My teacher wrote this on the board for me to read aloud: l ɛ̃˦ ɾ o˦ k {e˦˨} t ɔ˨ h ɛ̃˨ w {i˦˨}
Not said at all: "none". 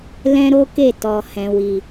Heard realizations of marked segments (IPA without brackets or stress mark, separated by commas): e˦˨, i˨